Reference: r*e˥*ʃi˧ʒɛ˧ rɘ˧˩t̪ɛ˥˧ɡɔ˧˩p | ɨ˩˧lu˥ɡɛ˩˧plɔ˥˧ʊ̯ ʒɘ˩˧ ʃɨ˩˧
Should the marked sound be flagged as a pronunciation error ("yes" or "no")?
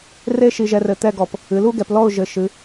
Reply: no